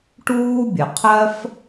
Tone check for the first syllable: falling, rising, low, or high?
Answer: high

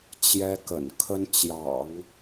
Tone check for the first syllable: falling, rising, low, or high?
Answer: high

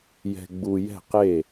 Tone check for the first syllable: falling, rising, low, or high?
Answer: low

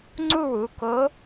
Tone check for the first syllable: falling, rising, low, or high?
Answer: falling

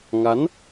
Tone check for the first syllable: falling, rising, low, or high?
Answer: rising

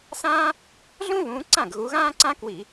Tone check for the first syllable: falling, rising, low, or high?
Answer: high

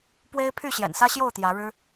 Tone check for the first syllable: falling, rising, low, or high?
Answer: high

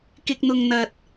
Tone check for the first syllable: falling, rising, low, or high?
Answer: high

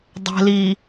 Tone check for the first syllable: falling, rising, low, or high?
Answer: low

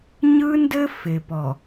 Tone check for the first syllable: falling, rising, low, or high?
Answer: high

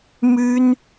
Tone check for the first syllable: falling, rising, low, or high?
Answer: high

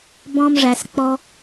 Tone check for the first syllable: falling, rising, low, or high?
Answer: high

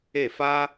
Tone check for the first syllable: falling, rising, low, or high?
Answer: falling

